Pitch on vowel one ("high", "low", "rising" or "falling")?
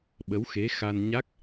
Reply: rising